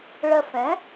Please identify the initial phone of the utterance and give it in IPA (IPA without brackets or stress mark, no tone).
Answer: ɭ